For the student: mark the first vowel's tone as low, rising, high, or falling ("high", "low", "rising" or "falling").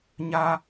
high